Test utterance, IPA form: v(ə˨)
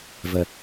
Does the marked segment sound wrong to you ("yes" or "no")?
no